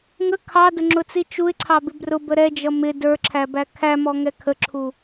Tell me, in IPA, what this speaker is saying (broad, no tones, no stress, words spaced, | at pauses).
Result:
ŋə kʰɑdʊŋ͡ǁʊt͡si t͡ʃuɪ̯ǀʰɑbɪ brʊbə ɾɛd͡ʒʌ mɪ də˞ǁʰæbæ kʰæmɔŋɛ kʰəǁʰu